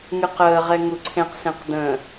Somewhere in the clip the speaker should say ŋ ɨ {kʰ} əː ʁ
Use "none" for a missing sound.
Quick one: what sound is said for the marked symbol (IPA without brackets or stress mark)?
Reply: q